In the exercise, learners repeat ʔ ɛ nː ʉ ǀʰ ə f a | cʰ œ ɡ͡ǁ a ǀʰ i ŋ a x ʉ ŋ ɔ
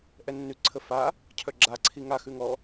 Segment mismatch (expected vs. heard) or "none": none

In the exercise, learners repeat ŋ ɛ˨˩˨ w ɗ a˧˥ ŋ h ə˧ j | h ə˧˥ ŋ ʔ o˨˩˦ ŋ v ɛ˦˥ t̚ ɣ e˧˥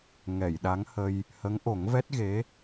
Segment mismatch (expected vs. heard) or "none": w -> j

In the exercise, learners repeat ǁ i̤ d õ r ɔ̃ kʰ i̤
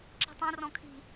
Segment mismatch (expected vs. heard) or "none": d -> tˤ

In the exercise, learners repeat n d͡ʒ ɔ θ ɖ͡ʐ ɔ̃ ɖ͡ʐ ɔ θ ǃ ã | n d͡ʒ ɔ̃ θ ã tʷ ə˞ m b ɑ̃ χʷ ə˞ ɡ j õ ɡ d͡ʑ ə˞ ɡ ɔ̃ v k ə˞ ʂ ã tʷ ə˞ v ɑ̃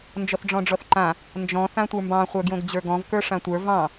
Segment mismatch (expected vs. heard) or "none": none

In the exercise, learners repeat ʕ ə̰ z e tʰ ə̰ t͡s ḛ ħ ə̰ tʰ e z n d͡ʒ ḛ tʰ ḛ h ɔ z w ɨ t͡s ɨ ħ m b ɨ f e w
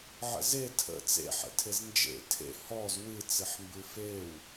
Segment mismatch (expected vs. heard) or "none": none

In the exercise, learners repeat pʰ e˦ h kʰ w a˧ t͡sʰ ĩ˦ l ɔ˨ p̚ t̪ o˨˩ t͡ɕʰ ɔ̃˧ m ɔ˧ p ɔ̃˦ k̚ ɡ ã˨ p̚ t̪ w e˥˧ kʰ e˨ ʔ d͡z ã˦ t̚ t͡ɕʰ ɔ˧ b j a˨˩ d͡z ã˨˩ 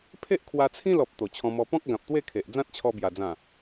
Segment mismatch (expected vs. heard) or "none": h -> ʔ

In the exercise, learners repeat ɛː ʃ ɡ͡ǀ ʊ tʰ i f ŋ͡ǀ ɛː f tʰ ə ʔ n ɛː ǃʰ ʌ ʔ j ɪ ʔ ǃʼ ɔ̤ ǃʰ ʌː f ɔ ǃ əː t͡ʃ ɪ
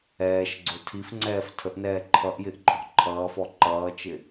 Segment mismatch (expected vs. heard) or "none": əː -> ʌː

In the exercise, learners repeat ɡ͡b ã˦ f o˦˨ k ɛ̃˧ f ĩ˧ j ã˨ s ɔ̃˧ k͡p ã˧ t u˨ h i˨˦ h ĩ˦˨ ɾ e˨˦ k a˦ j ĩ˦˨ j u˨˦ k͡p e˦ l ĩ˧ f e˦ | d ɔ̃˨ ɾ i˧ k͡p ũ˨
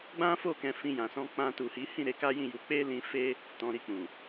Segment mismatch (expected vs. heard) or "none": d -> t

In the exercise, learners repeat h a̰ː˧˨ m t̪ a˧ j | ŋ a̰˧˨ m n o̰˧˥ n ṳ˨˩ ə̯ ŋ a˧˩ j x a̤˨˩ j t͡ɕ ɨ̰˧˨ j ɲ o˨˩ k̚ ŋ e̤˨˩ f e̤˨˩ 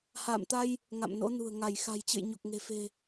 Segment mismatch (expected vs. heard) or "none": none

